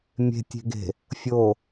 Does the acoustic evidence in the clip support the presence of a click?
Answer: no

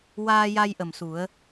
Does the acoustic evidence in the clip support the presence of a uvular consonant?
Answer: no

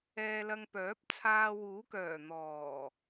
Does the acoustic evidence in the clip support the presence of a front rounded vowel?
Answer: yes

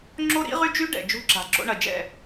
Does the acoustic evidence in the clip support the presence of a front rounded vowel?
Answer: yes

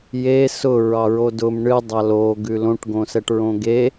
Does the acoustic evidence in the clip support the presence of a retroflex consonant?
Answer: yes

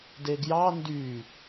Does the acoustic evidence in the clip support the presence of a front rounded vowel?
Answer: yes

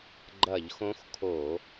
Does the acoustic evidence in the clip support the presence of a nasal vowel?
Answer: yes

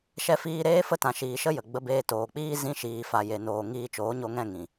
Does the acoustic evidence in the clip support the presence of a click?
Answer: no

